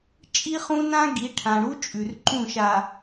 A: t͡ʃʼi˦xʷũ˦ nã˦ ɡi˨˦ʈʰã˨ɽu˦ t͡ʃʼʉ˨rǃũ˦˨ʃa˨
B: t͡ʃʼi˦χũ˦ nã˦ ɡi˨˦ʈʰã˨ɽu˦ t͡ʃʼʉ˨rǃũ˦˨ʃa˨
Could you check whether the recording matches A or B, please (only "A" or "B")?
B